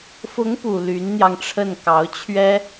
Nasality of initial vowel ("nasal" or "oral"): oral